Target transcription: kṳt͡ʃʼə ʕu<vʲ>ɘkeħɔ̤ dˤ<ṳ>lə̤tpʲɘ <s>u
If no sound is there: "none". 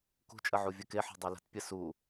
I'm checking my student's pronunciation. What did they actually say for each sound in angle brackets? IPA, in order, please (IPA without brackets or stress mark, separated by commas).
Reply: vʲ, u, s